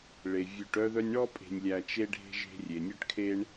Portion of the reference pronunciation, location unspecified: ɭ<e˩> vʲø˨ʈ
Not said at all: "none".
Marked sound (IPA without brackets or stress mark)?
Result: e˩